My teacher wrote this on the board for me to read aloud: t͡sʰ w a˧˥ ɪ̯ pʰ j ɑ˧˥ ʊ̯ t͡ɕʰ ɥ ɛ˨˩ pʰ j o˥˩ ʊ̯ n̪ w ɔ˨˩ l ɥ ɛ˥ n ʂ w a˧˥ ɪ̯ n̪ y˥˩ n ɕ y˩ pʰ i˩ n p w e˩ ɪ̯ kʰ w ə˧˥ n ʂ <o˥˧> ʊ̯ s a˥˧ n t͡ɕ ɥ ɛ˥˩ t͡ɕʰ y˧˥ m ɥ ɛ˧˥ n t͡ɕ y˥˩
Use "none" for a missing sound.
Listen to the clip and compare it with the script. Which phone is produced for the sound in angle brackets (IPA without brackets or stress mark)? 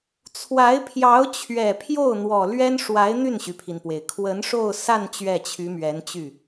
o˥˧